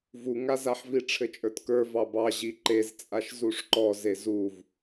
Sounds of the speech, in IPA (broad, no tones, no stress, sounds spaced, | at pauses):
v u ŋ a z a ħ v i ʈ͡ʂʰ ɘ t͡ʃʼ ə˞ t k ə˞ v ɑ b ɑ ʑ i ǃ e z t͡sʼ a ʃ z u ʂ ǃ ɔ z e z u v